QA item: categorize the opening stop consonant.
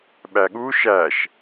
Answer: implosive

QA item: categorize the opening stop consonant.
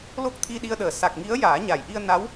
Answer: plain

